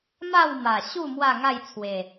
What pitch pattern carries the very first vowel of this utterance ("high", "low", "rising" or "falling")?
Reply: falling